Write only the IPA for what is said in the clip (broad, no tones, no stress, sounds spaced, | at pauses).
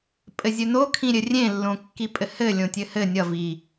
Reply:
pʼ ɘ zʲ ɵ n o kʰ ĩ ɾʲ ɘ rʲ ẽ lː õ kː i pʼ ɘ h ɘ lʲ õ tʲ ɘ h ɘ nʲ ʌ v i